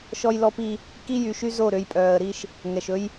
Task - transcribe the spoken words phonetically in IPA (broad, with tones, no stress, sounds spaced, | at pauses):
ʃ ɔ˦ j l ɔ˦ p i˦ | k i˦ j y˨˦ ʃ y˦ z o˦˨ ɾ ø˦ j pʼ œː˨ ə̯ ɾ i˦ ʃ | ŋ ɛ˨ ʃ ɵ˦ j